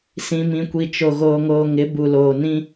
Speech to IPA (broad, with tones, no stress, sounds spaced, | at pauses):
s ĩ˨ m ĩ˨ kʷ i˨ t͡ʃ o˨ ɣ oː˨ ŋ oː˨ ŋ ɪ˨˦ b u˨ l oː˨ n ĩ˦